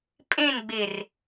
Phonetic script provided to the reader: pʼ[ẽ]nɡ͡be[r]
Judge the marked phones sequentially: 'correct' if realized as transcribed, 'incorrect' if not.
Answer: correct, correct

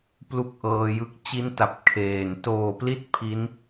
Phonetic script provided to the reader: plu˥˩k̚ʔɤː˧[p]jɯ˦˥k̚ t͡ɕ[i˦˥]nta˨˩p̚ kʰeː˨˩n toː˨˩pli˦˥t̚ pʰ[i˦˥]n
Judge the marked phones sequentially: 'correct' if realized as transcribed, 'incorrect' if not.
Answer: incorrect, correct, correct

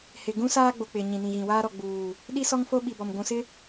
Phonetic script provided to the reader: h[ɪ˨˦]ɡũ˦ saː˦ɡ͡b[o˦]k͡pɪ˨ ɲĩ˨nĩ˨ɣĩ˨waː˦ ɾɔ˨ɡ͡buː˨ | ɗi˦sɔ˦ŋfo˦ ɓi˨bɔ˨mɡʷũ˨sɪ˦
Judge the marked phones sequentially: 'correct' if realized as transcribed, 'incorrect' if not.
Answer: incorrect, incorrect

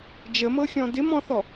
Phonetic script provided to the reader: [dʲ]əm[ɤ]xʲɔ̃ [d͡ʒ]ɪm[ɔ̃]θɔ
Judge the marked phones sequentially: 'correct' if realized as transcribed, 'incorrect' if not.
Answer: incorrect, correct, incorrect, correct

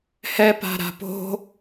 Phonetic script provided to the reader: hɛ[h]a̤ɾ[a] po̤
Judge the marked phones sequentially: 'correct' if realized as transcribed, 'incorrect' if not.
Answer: incorrect, incorrect

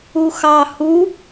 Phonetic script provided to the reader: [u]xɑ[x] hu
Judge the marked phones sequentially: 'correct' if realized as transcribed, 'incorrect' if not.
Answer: correct, incorrect

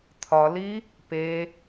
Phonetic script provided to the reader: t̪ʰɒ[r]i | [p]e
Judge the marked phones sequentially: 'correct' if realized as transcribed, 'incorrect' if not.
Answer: incorrect, correct

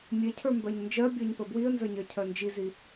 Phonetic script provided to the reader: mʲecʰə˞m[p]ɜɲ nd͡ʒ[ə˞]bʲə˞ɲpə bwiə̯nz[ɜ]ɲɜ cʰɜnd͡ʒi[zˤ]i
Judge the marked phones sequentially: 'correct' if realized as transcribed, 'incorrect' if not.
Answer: incorrect, incorrect, incorrect, incorrect

